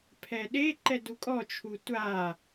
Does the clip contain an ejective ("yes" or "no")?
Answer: yes